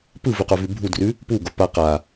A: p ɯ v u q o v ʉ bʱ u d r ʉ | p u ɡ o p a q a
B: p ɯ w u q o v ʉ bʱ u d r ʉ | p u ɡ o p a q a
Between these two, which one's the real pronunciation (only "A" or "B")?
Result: A